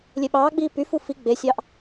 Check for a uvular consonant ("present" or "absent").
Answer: absent